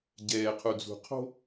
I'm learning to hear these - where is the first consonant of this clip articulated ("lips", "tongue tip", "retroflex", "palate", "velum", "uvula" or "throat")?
palate